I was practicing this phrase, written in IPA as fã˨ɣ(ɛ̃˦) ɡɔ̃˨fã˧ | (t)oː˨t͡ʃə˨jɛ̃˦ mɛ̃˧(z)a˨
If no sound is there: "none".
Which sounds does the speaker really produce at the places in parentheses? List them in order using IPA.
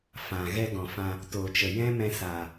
ɛ˦, t, s

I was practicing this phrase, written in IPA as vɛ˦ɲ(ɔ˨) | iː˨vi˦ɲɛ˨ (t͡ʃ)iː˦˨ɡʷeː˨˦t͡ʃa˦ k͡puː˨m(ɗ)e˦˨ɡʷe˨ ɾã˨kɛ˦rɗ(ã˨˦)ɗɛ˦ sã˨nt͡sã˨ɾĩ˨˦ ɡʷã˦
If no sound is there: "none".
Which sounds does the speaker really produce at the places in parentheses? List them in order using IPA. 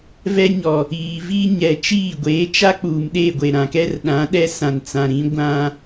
ɔ˨, t͡ʃ, ɗ, ã˨˦

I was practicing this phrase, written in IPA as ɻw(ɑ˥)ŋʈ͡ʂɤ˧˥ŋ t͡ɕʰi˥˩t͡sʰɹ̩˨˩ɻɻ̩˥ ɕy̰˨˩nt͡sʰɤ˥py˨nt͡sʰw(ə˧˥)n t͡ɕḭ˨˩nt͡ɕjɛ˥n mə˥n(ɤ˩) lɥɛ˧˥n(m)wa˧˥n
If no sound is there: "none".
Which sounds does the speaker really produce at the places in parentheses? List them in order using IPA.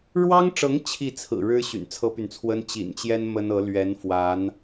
ɑ˥, ə˥, ɤ˧˥, f

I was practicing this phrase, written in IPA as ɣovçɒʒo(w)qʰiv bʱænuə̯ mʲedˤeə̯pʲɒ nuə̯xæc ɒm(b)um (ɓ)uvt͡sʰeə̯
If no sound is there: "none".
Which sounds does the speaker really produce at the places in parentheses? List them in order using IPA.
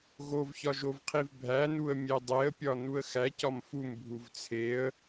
v, f, bʱ

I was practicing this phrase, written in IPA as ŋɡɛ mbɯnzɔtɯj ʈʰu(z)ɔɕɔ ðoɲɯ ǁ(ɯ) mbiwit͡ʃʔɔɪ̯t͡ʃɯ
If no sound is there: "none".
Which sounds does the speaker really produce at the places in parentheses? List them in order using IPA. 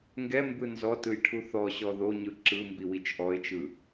θ, ɯ

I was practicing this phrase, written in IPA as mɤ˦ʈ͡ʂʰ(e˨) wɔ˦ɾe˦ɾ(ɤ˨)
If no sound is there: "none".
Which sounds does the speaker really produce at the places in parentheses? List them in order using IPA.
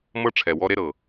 ɛ˨, ɤ˨

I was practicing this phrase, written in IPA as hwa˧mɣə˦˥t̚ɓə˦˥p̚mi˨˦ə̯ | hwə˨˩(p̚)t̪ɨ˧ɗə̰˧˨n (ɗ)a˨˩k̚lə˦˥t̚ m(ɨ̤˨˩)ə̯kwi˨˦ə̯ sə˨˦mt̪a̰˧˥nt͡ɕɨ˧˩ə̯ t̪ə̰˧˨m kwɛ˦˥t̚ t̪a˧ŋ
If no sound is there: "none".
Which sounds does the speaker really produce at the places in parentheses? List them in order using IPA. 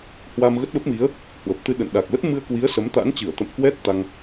p̚, ɗ, ɨ˧

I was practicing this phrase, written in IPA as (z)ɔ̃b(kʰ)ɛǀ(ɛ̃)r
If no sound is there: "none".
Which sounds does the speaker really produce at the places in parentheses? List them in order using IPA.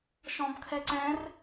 ʃ, kʰ, ɛ̃

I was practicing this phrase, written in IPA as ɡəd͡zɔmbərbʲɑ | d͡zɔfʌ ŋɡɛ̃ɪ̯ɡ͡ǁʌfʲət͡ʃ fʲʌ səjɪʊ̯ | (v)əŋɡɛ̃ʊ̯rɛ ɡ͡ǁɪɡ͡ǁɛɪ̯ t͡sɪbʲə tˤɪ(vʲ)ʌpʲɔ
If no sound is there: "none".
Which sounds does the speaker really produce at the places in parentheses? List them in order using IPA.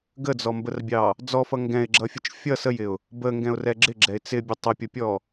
b, pʲ

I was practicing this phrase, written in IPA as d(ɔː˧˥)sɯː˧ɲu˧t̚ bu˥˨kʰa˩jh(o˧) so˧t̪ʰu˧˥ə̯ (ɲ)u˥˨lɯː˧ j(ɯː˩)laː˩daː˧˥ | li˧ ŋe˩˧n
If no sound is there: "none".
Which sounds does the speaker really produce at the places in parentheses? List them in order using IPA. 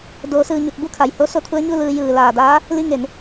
oː˧˥, o˧˥, ɲ, ɯː˩

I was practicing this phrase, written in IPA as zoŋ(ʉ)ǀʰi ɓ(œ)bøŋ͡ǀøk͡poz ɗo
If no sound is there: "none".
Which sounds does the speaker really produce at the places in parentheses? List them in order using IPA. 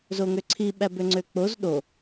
ø, æ

